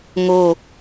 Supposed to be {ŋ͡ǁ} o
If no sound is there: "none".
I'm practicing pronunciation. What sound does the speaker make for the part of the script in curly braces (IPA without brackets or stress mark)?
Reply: ŋ